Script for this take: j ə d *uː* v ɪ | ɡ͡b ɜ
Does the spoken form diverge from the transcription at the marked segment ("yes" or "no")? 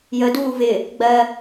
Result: no